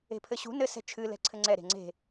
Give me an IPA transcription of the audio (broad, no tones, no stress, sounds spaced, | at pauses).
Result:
e̤ pʰ ɘ ɕ ṳ n ɘ s ɛ̤ t͡ʃʰ ɨ l ɛ̤ ǀʰ ɘ ŋ͡ǀ ɛ ɾ e̤ ŋ͡ǀ e̤